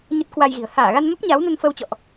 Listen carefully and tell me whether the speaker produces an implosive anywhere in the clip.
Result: no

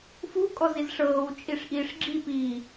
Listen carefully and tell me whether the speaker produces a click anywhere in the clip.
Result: yes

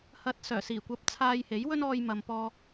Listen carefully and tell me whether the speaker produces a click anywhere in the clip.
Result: no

